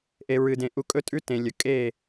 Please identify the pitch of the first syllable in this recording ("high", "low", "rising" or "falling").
low